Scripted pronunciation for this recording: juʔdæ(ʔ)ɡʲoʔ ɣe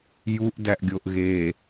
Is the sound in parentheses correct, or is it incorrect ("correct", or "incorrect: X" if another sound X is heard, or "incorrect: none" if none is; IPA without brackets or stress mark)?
correct